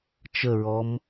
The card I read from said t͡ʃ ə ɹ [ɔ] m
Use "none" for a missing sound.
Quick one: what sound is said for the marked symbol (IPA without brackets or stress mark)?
ɔ